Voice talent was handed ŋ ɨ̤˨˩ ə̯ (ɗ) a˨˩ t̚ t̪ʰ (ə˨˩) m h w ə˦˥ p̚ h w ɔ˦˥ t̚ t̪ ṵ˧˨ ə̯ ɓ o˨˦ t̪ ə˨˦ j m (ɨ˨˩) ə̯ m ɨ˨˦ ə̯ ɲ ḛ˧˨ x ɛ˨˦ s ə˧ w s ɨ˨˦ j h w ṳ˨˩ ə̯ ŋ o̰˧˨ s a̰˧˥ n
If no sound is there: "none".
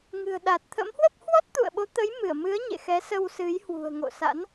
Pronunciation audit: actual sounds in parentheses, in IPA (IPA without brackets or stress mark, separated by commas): ɗ, ə̰˧˥, ɨ˧˩